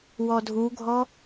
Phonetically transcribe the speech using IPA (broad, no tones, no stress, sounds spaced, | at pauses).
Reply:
w ɔ dʱ u ɡʱ ɔ